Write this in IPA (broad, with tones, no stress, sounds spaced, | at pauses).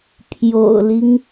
pʰ j o̰˨˩ ʊ̯ l i˦ ŋ